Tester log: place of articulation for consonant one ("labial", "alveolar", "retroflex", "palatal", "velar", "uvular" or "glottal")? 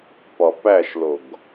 labial